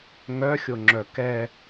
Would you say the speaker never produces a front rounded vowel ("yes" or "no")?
no